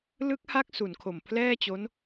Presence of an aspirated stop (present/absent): present